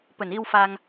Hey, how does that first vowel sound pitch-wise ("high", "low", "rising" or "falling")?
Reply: low